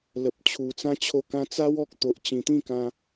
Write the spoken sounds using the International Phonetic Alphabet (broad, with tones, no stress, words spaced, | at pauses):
lə˨p̚t͡ɕʰu˨˩t͡sã˦ t͡ɕʰo˧kã˧t͡sa˦w ɔ˦k̚ t̪o˨ʔt͡ɕĩ˨˩t̪ĩ˥˧kã˧